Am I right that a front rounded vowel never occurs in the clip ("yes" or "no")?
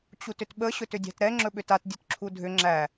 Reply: no